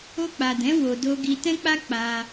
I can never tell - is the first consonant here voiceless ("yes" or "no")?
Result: yes